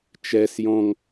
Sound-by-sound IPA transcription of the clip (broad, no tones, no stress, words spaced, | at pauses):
t͡ʃɛs jɔ̃ŋ